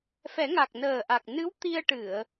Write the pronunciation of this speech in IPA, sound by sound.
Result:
f ɛ˨˩˦ ŋ a˨˩ k̚ n əː˨˩ ʔ a˨˩ k̚ n ɨ˧˥ w t̪ i˧ ə̯ ʈ ɨ˨˩˨ ə̯

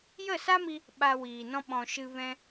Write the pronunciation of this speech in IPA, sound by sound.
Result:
j ə˦˨ s a˦ m i˧ | ɓ a˧ w iː˨ n ɔ̃˦ ɓ ɔ̃˨ ʃ ɨ˧ v ɛ̃˧

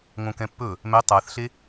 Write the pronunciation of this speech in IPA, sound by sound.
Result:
ŋ õ k ɛ̃ pː ɵ | m ɛ tˤ a θ ɬ e

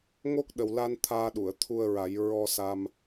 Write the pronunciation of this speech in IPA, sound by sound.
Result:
ŋ o˦˥ k̚ ɗ ə˨˩ w l a˧ n t̪ʰ aː˧ ɗ u˨˩˨ ə̯ t̪ʰ u˧ ə̯ ɹ a˨˩˦ j ɹ ɔ˧ s a˧ m

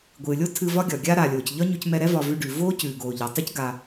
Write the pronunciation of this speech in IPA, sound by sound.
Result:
ɡʷ ɨː˨ lʲ o˦ tʰ ɨ˧ v ɒ˦ ɡʲ ɒ˨ ɡʲ aː˦ ɾ aː˨ lʲ oː˨ c ʎ ɒ˦ ɲ ʉ˧ c m ɛ˧ ɾ ɛ˦ v ɒ˧ v ʉ˧ ɖ ʉ˨ v oː˦ c ʉː˨ ɡ oː˨ ʎ ɒ˨ tˤ ʉ˦ c ɡ a˧

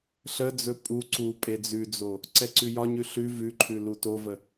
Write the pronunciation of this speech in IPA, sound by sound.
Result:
ɬ ə d͡z ɵ pʼ u ǀ u pʼ e d͡z ʉ d͡z o | ǀ ɛ ǀ ʉ j ɒ ɲ ʉ ɬ ʉ v ʉ ǃʰ ʉ l u t o v ə

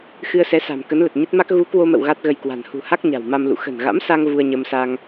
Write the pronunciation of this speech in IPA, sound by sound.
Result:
x ɨ˧ ə̯ s ɛ˨˦ s a̤˨˩ m k ə˨˦ n l ə˨˩ t̚ ɲ ə˦˥ t̚ m a˦˥ k̚ ɣ u˨˦ k w o˧ m ə̰˧˨ w ɣ a˦˥ t̚ ɣ ə˧ j k w a̤˨˩ n h ṳ˨˩ h a˦˥ k̚ ɲ a̤˨˩ w m a˧ m l ṵ˧˨ x ə̤˨˩ n ɣ a̰˧˥ m s a˧ ŋ v u˧ ə̯ ɲ ə˧ m s a˧ ŋ

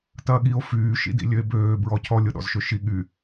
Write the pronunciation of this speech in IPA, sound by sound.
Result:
t ɐː ɠ i o̯ f yː ʃ ḭ d ḭ lʲ ø e̯ b øː b ɹ ɔ cʰ ɔ lʲ ʊ ɗ ɔ̰ z ʃ ø ʃ i ɠ y

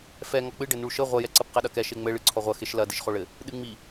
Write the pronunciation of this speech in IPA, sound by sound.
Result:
f ɛ ŋ ɔ k͡p ɨ ɖ ɘ n u ɭ ʃ ɘ ʁʷ ɐ j ɛ ǀ ɐ p q ɛ ɗ ɐ k ɛ ʃ e ŋ͡m ɘ ɭ ɨ ǀʰ ɔ ʁʷ ɐ x e ʃ l ɐ d i ʃ χ o ɭ ɘ | ɗ ɨ ŋ͡m i

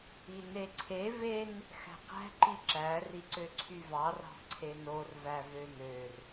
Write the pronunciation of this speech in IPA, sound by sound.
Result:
i n e ǀʰ e v e n | x æ̤ q æ̤ ǃ i ǁ æ r i ǀ ø ǀʰ y v ɑ r ɑ̤ ǀʰ e n o r v æ v ø n ø r

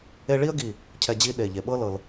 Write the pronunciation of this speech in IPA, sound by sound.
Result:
e˥ ɭ i˥ ə̯ ɡ i˧˩ | cʰ ɛ˧ d͡ʑ i˥ ɗ e˧˩ ʎ e˧˩ ɓ ɤ˥ l ɤ˧ l

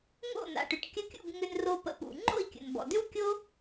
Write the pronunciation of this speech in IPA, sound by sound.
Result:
ŋ o̰˥˩ n a̰˩ ʈ ʏ˩ ʈ kʲ ə˧ kʲ ṵ˥˩ b ŋ ʏ˧ n r o˧ p ə̰˧ p ṵ˩ ŋ͡ǃ o̰˥˩ i̯ kʲ ə̰˩ n b ɔ̰˩ d ʏ˥ w kʲ o˥

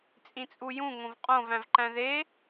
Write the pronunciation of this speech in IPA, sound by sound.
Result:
t͡sʼ ĩ t͡sʼ u j ũ ŋ õ v qʼ õ v æ̃ v ǃ æ̃ ð e

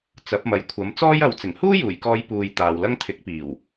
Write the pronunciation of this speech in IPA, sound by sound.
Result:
t͡s ɐ˨˥ p̚ m ɐ˨ j kʷʰ ɐ˨˥ m t͡s ɔː˥ j ɐ˨˧ w t͡s ɪ˨˩ ŋ h uː˥ j uː˨˩ j k ɔː˨˧ j p uː˨ j t̪ aː˨ w l ɐ˥ ŋ t̪ʰ ɪ˨˥ k̚ p iː˨˩ w

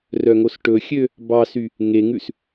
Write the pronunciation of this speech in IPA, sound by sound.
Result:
r œ ŋ o s ʈ ɵ xʲ ø | b ɑ s y | ŋ e ŋ ʉ s

